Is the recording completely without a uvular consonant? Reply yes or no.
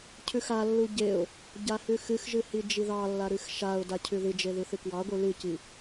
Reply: yes